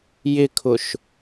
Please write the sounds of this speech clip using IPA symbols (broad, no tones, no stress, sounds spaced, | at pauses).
j ɪ kʰ ʊ ʃ